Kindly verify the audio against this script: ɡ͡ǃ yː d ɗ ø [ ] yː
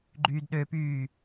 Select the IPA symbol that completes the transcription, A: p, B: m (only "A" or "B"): A